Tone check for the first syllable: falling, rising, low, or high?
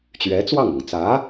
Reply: rising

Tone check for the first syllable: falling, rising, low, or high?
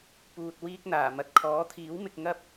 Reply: low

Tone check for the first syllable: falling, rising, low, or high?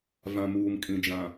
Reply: low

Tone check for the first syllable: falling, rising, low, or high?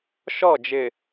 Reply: falling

